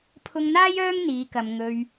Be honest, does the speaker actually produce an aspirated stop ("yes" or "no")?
yes